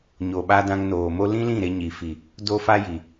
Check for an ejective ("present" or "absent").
absent